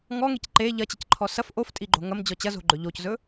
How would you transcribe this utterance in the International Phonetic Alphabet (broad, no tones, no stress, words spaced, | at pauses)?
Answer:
ŋɔŋec ǃe ʎɐt͡ɕəcǃʰɔ sɐf ʔoftʼiɡ͡ǃo̤ ŋɐmd͡ʑɔ t͡ɕɐzo̤ɡ͡ǃɵ ʎoczɵ